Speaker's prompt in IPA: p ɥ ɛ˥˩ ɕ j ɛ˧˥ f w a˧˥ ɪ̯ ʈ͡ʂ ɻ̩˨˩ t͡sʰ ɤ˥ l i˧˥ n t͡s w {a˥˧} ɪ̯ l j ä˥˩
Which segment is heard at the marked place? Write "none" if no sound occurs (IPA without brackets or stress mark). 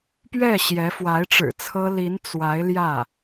a˧˥